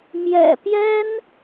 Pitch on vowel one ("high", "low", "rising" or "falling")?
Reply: low